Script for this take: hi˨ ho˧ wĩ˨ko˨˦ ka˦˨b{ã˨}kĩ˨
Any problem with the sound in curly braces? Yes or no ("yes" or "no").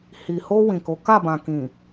no